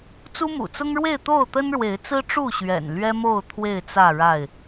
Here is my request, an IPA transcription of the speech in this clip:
t͡s u˦ m ṵ˨˩ t͡s ʊ˦ ŋ ɻ w e˥˨ ɪ̯ t̪ o˥˨ ʊ̯ t̪ ə˦ n ɻ w e˨˦ ɪ̯ t͡s ɹ̩˦ ʈ͡ʂ u˥˨ ɕ ɥ ɛ̰˨˩ n l ɥ ɛ˦ m o˥˨ ʊ̯ t̪ʰ w e˥˨ ɪ̯ t͡s ä˥˨ ɻ a˥˨ ɪ̯

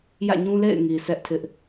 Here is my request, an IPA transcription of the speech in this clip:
j ä̰˦˨ ɲ ũ˦ l ḛ˦˨ ɪ̯ ŋ i˨ sʰ ɛ˦ ʔ tʰ ɪ˦ ʔ

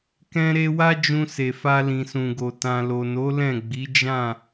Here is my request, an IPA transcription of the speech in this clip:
k ɛ̃˧ ɾ e˧ w a˦ d͡ʒ ũ˧ s e˨ f a˧ l ĩ˨ s ũ˨ ɡ o˨ t ã˨ l o˨ n o˨˦ l ɛ̃˦˨ ɡ͡b i˨˦ d͡ʒ ã˦˨

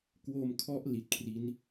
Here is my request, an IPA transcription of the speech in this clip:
k w o˧ m kʰ ɔ˦˥ ʔ l i˨˩ t̚ kʰ r i˦˥ n

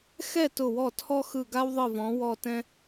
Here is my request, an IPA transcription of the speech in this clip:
x ɛ˦˨ t ʊ˦˨ w ɔ˦˨ tʰ ɔ˥ x ɯ˦˨ ɡ a˥ w ðˤ ɯ˦˨ v ɔ̃˨˦ w ɔ˦˨ t ɛ̃˥

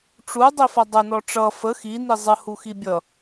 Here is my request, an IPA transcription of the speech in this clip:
ʈ͡ʂ u dˤ i f ʌ dˤ ə n ɔ ʈ͡ʂ ʌ f ə x i n i zˤ ə h u x i bʲ ʌ

